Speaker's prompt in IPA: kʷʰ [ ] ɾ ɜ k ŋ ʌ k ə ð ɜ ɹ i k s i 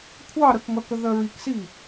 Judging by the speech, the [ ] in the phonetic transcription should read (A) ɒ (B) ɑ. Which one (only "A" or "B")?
B